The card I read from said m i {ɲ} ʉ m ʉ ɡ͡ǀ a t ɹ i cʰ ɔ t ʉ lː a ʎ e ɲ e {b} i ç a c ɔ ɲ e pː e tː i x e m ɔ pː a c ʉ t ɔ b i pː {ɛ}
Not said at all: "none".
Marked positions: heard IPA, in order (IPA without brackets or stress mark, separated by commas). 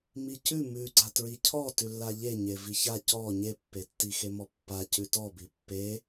c, v, e